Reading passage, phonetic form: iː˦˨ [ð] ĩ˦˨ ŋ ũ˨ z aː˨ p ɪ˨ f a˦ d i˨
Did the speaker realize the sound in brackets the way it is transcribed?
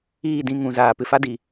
no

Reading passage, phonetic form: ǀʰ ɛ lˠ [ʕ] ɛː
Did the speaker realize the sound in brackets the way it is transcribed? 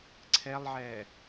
yes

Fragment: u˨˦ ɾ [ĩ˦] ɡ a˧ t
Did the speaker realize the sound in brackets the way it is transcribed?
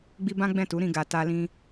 no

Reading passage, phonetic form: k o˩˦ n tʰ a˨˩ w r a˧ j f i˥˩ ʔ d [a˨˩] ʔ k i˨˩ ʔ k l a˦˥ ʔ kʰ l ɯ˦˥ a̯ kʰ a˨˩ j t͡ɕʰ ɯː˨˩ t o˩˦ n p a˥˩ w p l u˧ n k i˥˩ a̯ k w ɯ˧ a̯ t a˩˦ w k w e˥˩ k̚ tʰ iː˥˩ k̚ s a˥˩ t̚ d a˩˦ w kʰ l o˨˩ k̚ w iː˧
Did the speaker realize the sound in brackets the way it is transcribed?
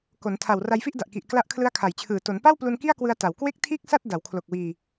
yes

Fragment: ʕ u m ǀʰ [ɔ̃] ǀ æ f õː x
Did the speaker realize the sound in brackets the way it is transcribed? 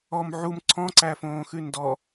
yes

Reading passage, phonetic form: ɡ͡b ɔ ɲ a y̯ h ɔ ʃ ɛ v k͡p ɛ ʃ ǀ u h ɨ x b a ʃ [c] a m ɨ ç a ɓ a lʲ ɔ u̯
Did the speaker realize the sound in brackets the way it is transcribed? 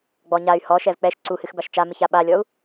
no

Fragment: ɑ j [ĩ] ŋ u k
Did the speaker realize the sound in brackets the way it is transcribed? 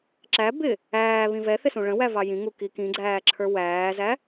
yes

